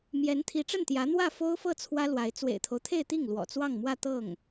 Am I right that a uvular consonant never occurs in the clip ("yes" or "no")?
yes